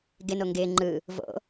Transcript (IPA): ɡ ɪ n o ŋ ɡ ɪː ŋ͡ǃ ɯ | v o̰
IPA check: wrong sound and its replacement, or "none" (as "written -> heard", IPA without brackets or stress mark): none